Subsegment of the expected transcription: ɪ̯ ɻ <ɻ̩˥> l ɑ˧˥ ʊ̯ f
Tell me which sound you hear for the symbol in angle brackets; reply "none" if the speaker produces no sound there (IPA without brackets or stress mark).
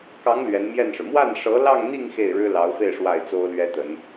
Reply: ɻ̩˥